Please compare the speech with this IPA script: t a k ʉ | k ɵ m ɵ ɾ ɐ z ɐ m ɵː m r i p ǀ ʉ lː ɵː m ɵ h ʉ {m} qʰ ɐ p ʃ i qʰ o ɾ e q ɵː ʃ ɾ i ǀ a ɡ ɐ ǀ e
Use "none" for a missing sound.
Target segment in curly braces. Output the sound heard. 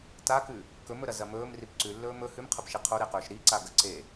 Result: m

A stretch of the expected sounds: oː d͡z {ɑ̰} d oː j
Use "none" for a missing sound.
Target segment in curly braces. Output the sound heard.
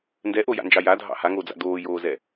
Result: a̰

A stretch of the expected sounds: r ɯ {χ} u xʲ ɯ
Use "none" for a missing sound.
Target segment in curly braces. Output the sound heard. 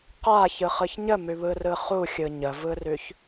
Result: χ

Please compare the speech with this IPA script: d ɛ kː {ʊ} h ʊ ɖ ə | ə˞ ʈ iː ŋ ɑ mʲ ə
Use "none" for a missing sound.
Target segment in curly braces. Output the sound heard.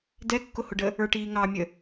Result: ʊ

